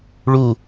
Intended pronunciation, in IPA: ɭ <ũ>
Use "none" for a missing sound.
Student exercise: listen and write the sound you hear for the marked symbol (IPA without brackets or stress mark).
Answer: u